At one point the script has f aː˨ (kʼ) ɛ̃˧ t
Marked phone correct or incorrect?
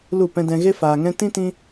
incorrect